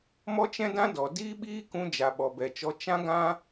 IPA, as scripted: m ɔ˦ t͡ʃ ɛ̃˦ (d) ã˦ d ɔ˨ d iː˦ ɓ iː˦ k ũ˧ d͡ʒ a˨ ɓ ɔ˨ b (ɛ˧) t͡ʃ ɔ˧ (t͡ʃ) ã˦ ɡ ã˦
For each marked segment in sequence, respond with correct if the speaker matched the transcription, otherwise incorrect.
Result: correct, incorrect, correct

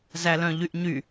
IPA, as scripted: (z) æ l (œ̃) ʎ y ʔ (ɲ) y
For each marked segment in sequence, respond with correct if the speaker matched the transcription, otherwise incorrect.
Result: correct, correct, correct

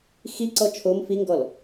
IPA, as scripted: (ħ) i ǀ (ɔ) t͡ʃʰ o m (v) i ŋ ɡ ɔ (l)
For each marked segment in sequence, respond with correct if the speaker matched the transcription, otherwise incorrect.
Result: incorrect, correct, incorrect, correct

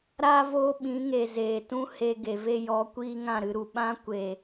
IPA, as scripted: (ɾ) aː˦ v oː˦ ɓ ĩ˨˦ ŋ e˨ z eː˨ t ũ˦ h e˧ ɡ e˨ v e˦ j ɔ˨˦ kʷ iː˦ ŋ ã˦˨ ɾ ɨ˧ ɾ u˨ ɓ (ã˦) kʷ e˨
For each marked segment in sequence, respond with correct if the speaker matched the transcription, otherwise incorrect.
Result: correct, correct

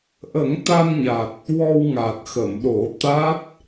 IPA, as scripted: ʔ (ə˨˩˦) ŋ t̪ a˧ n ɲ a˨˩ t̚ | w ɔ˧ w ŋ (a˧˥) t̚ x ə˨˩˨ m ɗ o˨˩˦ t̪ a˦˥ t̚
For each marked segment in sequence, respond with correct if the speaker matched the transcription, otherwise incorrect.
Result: correct, incorrect

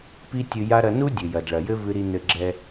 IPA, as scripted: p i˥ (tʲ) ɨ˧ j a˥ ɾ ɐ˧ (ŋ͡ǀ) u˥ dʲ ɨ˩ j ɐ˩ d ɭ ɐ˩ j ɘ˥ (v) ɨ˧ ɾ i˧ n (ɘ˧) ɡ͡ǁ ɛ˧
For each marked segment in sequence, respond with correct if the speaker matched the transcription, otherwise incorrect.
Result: correct, incorrect, correct, correct

